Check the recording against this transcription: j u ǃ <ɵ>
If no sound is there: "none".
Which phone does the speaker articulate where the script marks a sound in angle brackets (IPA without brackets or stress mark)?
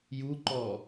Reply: ɔ